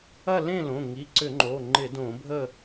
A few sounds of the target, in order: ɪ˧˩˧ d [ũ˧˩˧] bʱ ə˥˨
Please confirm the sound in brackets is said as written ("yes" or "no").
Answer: no